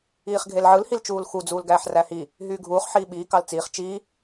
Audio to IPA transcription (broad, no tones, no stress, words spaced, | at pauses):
iːχɡʱelʕɯl hilt͡ʃuːlxu d͡zuːlɡæːħræhi | ɦyːɡʱuːχ ħiːɓiː kɑlt͡siːχ t͡ʃiː